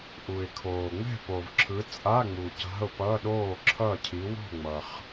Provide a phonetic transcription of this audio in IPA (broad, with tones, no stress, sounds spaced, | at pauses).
ʔ u˨ ɪ̯ kʰ oː˨ ŋ͡m ɛ̤˥˨ p o˨ v ǁʰ ɯ˨˦ t͡sʼ a˧˥˧ ŋ͡m u˨ c a̤˧˥˧ ʊ̯ p ʌ˧˥˧ ɗ oː˥˨ ǁʰ ʌ˥˨ cʰ i˨˦ w o̤˥˨ ŋ͡m ʌ˨ χ